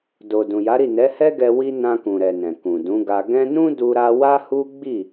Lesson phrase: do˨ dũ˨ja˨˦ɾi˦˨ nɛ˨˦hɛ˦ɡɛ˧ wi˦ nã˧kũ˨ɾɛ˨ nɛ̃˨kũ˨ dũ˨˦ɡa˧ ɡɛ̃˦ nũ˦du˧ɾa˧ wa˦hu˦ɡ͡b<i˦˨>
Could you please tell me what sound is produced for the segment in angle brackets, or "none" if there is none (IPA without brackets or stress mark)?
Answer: i˦˨